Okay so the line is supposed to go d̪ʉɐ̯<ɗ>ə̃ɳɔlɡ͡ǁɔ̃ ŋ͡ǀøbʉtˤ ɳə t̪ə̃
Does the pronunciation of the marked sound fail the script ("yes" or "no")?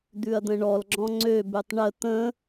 yes